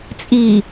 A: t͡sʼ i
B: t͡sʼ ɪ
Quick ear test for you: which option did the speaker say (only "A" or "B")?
A